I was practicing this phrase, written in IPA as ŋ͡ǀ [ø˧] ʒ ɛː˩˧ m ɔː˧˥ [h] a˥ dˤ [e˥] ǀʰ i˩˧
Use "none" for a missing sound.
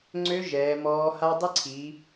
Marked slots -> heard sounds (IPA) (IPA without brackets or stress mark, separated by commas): ø˧˥, h, e˥